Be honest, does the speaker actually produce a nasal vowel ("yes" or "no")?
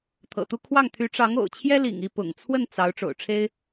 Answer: no